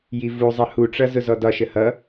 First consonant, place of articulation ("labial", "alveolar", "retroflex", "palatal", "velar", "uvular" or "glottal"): palatal